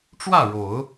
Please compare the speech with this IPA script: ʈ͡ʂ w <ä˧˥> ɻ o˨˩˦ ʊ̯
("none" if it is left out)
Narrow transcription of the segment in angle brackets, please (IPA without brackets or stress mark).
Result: ä˥˩